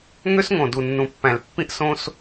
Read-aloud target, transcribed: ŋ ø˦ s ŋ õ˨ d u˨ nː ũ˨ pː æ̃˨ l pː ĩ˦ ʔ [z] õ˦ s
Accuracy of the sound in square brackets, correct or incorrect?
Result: incorrect